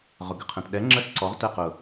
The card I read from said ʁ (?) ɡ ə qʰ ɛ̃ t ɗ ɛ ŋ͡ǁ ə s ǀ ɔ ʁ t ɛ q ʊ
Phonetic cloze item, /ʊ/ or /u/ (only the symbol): ʊ